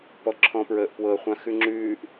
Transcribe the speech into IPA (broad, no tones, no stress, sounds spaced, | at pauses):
p ɔ ǁʰ ɔ̃ p ɹ əː ʔ p w ɤ χʷ ã x ʉ ŋ͡ǁ ʉː ʔ